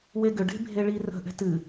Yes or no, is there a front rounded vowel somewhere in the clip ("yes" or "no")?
yes